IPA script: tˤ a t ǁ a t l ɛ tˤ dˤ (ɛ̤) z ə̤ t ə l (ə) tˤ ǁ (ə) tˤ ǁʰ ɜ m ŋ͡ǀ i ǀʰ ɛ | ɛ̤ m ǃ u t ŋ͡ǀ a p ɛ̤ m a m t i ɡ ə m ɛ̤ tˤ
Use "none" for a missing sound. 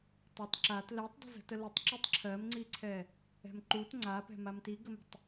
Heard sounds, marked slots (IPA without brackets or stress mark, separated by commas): ə̤, ə, ə